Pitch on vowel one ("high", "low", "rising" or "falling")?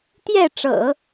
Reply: falling